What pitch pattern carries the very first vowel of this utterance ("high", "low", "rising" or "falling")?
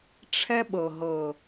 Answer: high